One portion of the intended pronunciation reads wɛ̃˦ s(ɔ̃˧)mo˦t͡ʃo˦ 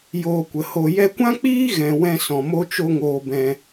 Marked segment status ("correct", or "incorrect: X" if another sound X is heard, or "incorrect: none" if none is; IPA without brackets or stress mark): incorrect: ɔ̃˨